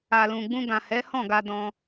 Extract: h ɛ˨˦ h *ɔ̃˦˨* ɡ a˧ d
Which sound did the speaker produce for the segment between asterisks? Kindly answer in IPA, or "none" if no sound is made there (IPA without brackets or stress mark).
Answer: ɔ̃˦˨